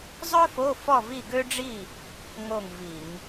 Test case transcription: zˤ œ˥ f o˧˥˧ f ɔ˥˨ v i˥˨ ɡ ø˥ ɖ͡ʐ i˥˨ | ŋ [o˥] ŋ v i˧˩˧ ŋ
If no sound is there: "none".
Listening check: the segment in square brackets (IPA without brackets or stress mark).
o˥˨